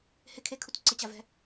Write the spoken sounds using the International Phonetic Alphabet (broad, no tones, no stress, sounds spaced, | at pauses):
h ɪ kʰ e kʰ u t ǀ ɪ t͡ɕ a v ɛ̤